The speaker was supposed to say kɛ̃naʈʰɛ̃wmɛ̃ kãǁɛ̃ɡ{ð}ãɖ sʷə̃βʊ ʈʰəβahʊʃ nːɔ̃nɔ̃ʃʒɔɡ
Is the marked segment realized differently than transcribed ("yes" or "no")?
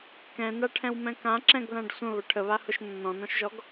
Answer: no